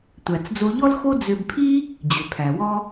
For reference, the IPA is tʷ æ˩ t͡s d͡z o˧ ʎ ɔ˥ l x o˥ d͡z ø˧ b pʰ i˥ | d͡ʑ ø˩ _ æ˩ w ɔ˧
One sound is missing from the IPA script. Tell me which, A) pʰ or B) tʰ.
A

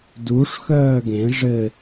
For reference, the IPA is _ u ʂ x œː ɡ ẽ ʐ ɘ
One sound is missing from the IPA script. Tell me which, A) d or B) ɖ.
A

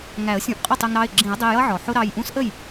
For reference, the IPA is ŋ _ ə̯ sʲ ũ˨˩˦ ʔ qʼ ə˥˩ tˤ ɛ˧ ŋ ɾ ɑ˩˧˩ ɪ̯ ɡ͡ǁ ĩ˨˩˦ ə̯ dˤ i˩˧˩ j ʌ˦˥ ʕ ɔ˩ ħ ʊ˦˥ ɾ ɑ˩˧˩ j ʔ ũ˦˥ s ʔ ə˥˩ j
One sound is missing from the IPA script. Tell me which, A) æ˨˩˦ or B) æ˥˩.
A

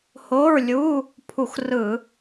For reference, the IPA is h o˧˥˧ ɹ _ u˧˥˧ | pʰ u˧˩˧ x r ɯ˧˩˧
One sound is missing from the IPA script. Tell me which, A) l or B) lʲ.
B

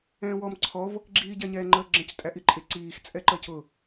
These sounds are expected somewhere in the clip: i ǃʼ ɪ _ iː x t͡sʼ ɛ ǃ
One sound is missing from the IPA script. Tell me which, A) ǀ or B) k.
A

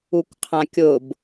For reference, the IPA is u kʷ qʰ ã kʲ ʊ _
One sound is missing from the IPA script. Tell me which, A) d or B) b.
B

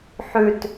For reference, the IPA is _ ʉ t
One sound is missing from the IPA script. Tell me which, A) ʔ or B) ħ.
B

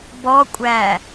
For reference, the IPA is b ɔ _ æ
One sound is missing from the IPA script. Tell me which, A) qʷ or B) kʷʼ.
B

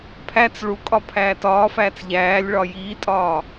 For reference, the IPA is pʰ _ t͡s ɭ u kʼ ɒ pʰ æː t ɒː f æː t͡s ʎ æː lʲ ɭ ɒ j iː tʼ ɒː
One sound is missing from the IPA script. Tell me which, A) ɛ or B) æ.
B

